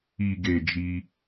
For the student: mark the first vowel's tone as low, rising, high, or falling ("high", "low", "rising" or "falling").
low